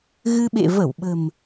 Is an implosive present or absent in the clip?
present